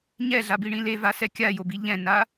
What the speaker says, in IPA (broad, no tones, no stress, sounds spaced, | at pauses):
ɲ ɛ ɮ a b i ɳ ĩ l e v a s ɛ kʲ a j o b i ʎ ɛ̃ n a